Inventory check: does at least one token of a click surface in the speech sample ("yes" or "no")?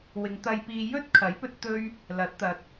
no